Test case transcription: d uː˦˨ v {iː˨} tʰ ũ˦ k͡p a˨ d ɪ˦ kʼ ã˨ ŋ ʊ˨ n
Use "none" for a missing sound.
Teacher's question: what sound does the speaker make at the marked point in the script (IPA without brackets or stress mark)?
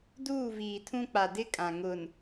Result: iː˨